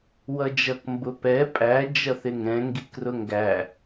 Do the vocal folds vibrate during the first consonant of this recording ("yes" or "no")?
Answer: yes